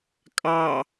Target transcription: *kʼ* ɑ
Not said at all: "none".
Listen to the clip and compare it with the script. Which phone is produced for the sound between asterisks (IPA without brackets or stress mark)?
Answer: kʼ